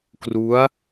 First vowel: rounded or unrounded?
rounded